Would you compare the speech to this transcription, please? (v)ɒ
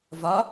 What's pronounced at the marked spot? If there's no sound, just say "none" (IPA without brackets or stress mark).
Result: v